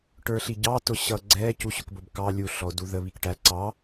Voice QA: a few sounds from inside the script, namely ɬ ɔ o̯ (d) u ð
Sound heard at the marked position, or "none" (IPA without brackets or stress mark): d